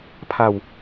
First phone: pʰ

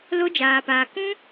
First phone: l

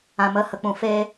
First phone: ã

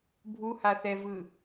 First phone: bʱ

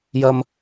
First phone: j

